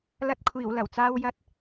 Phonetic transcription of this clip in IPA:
l ɐ˧ t̚ kʷʰ iː˨˩ w l ɐ˨˩ w t͡s aː˧ w j ɐ˧ t̚

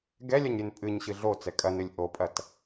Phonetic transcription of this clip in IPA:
ɡ ɛ lʲ ɐ ɲ ɾʲ ɨ n pʼ ɨ ɲ ɕ ɨ ɮ o t͡s ɛ kʼ ɐ n ɨ lʲ ʔ o pʼ ɐ t

